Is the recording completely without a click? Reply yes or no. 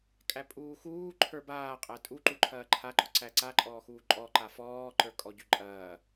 no